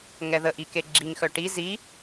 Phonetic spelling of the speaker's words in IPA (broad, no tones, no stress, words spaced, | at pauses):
ŋɛðəʔi keɡ͡ǁiŋxœ ʈi zi